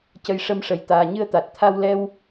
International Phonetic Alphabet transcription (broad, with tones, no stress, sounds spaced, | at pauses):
c ə˨˩ j ʂ ə˧ m ʂ ə˨˩ j t̪ aː˨˩ ɲ ɨ˧ ə̯ t̪ a˨˩ t̚ t̪ʰ a˧ w l ɛ˧ w